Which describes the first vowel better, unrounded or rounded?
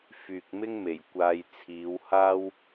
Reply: rounded